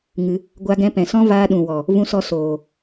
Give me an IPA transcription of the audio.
ŋ ɨ˧ | ɡʷ a˧ ɡ ɛ̃˧ p ɛ̃˨ s ɔ̃˦ v aː˧ ɗ ũ˨ w ɔ˨ | v ũ˧ s ɔ˧ s oː˨

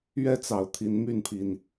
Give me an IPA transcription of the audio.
ɥ ɛ˦ t͡s ɑ˨˩ ʊ̯ t̪ʰ i˨˦ n m y˥˨ n pʰ i˨˩ n

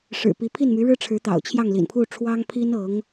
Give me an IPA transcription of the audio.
ʂ ɻ̩˨˩ p i˧˥ pʰ i˥˩ n m y˧˥ ɻ ɻ̩˥ ʈ͡ʂʰ ɻ̩˧˥ t̪ ɑ̰˨˩ ʊ̯ t͡ɕʰ j ɑ˥˩ ŋ l ḭ˨˩ n pʰ u˥˩ ʈ͡ʂʰ w ɑ˥ ŋ pʰ i˥ n ɤ˧˥ ŋ

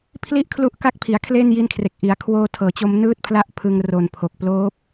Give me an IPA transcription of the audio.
pʰ l i˥˩ ʔ kʰ l u˦˥ ʔ k a˦˥ k̚ pʰ i˩˦ a̯ kʰ l eː˥˩ n j i˦˥ n kʰ r e˨˩ k̚ ʔ i˩˦ a̯ kʰ w oː˧ tʰ ɤː˩˦ t͡ɕ o˧ m n ɯː˦˥ t̚ pʰ l a˦˥ ʔ pʰ ɯ˧ ŋ r o˨˩ n pʰ o˨˩ k̚ p l oː˦˥ p̚

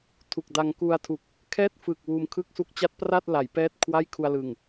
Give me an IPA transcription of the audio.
tʰ u˨˩ k̚ d a˧ ŋ k u˧ a̯ tʰ u˨˩ k̚ | kʰ ɛː˥˩ t̚ f ɯː˨˩ k̚ w uː˧ m kʰ ɯ˥˩ k̚ s u˥˩ k̚ t͡ɕ a˦˥ t̚ p r a˥˩ t̚ l a˩˦ j p ɛː˥˩ t̚ kʰ w a˥˩ j kʰ u˧ a̯ l ɯ˨˩ ŋ

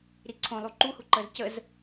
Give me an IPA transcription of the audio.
ɾ i ǀʰ õ lˠ u ǃ u h u ǃ əː z c ə z

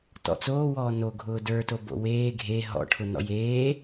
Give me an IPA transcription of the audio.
t ɔ̰ t͡s oː w ɔː n o ɡʱ ʊː d ə˞ t o b o̰ w eː ɡʱ e ɦ ɔ̰ ʈʰ ʊ n ɔ̰ j eː

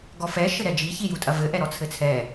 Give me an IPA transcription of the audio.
ɡ ɔ f ɛ ʃ ɘ ɾ ɛ d͡ʒ i ç i j u tʼ ɐ v ɘ ʔ ɛ ɾ ɔ t͡sʰ ɘ t͡sʰ ɛ

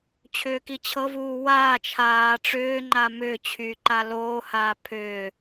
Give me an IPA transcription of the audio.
t͡ɕʰ ʏː k i t͡ɕʰ ɤ v uː w aː t͡ʃʰ aː ʈ͡ʂ ʏː ŋ͡ǃ a m ʏː t͡ɕʰ yː ǃ a l oː h aː pʰ ʏː

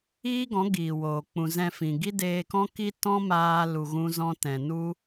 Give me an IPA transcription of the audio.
iː˦ ɡ ɔ̃˨˦ ɡ iː˨ w oː˨ k͡p ũ˨ z ɛ̃˧ f ĩ˨ ɡ i˦ d eː˧ k ɔ̃˦ k i˦ t ɔ̃˦ m aː˦ l u˧ ɣ ũ˦ z ɔ̃˦ t ɛ̃˧ n u˦

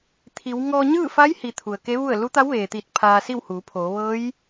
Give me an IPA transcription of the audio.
t̪ʰ i˩˧ w ŋ ɔː˧ ɲ ɯː˥˨ f a˧˥ j h i˩ t̪ʰ u˩ ə̯ k e˧˥ ʋ u˥˨ ə̯ l u˧˥ t̪ a˧˥ w ʋ eː˩ t̪ iː˧˩ t̚ pʰ aː˧ s i˥˨ w h uː˩˧ pʰ oː˩˧ ʋ ɤː˧˥ j

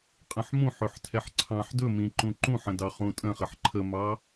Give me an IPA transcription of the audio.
qʼ ə̃ ħ m ũ ħ ø ħ tʰ ɛ ħ ǀʰ ɑ̃ ħ d ɵ m ĩ ǃ ũ ǃ ũ ħ ə̃ d ɑ χ ũ tʼ ə̃ χ ə ħ ǃʰ ə m ɑ

